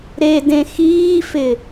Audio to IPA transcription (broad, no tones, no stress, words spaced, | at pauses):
ɾedẽxiːfɪ